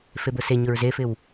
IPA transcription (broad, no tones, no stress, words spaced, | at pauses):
febʊseɲʊɹ zefɪw